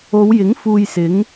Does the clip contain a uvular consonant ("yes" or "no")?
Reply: no